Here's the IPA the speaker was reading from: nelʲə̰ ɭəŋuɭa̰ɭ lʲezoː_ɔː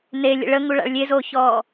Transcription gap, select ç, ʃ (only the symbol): ç